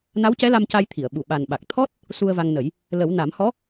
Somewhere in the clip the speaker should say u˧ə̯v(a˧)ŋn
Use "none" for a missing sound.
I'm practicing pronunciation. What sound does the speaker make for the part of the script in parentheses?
a˧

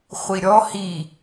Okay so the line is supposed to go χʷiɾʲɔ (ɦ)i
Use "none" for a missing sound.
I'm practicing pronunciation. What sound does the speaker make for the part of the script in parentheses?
h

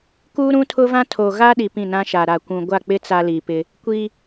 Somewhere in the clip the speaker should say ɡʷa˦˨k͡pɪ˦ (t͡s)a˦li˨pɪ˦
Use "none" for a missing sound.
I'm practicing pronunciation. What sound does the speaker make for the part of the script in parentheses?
t͡s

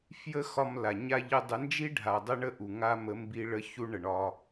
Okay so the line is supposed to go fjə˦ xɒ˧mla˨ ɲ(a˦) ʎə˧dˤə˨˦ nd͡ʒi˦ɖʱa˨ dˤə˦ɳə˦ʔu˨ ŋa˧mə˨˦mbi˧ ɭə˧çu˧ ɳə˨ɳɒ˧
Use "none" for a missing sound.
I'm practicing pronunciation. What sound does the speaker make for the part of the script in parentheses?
a˦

